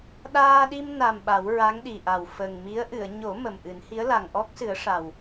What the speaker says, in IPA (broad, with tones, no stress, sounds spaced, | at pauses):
ɗ aː˧ ɗ i˧ m n a˨˩ m ɓ a˨˩˦ w ɹ a˧˥ ŋ ɗ i˨˩ ʔ a˨˩ w f ə˨˩ ŋ m i˧˥ ə̯ ʔ ɨ˨˩˨ ə̯ ɲ o˨˩˦ m ə˨˩ m ʔ ɨ˨˩˦ n h i˧˥ ə̯ l a˨˩ ŋ ʔ ɔ˦˥ k̚ s ɨ˨˩˦ ə̯ ʂ a˨˩ w